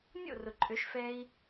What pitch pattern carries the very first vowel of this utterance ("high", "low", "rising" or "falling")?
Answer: falling